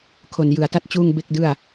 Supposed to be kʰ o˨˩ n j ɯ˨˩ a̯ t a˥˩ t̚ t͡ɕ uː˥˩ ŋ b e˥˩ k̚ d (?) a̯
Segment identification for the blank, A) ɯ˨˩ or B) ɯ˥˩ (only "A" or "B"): B